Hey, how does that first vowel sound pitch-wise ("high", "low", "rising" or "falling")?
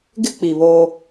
high